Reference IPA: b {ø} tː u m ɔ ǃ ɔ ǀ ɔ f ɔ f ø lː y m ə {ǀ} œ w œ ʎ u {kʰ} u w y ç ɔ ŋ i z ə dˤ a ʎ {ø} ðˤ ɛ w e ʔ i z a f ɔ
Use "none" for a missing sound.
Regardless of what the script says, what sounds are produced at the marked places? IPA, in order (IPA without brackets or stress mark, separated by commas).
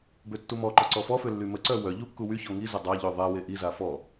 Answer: ø, ǀ, kː, ø